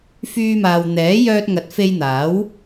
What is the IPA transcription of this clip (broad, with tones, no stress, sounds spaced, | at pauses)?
f yː˥ m aː˧ w n̪ ɛː˨˥ j œː˧ t̚ ŋ ɐ˨˥ t̚ f e˧ j n̪ aː˨˥ w